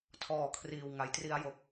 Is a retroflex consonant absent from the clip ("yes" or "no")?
yes